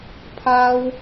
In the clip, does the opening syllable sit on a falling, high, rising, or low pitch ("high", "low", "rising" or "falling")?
high